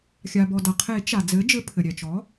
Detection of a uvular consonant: present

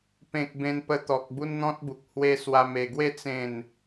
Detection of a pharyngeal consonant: absent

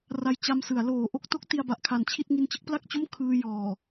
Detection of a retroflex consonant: absent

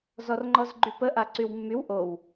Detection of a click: present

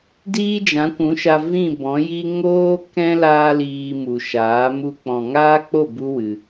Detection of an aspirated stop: absent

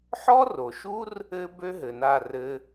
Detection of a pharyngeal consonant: present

